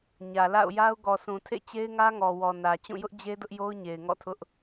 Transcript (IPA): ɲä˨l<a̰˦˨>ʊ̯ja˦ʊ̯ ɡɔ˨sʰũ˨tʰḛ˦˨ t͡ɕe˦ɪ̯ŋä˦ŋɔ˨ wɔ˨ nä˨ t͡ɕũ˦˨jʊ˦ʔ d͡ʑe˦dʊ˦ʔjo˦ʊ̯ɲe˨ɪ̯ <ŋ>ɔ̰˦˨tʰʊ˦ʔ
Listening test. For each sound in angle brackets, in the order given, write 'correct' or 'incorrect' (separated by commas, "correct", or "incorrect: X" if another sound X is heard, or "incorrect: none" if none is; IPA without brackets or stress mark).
correct, correct